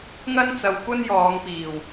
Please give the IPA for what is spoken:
ŋɐ˥nt͡sɐ˧wkʷɐ˥n jɔː˨˧ŋpiː˨˩w

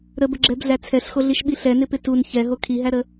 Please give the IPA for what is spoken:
ɾəbəɡ͡ǁɛbɮæ t͡sʰɛɬxoɮiʃɓi ɬɛnɪpɪ tun çɛɦo kʰiɦæɾə

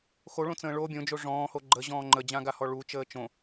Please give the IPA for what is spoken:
xoɭõt͡sə̃ː ɭo bʲõd͡ʒo ʐɔ̃ːho ɡ͡ǃəʑɔ̃ː ŋ͡ǃəd͡ʑãɡahɔ ɭut͡ʃəː t͡ʃõ

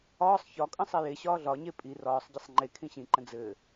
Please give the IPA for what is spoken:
ɒːsˤ çɒkʼə̃ sˤeje ɕɒːɮɒ ɲepʼi rɒːsˤɟisˤ ŋ͡ǃe kʰĩɕĩǃə̃ d͡zɘː

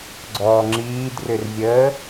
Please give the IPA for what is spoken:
ɡ͡ǀɔːŋ͡ǁiːdrʏrvʲəː

